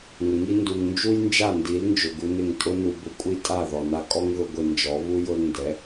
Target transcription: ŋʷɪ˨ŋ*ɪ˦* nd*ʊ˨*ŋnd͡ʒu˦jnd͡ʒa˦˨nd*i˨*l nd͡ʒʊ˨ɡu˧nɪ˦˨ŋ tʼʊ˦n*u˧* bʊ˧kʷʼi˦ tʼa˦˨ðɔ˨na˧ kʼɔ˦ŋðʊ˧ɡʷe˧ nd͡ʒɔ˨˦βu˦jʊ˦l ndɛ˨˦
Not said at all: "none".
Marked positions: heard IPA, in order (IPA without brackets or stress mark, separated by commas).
i˦, u˨, i˨˦, u˧